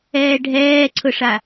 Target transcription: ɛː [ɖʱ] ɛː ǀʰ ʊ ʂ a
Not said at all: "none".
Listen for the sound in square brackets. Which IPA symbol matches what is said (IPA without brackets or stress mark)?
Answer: ɖʱ